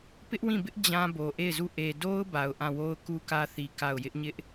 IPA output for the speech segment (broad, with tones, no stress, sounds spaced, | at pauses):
p ɪ˦ ʔ w ĩ˦˨ b ɪ˦ ʔ d͡ʑ ã˦ b o˨ ʔ e˦˨ ɪ̯ z u˦˨ ʔ e˨ d o˦ ʊ̯ b a˨ ʊ̯ ʔ ã˦˨ w o˦ ʊ̯ k u˦ k ä˦ θ i˨ k a˦˨ ʊ̯ j ɪ˦ ʔ ɲ ɪ˦ ʔ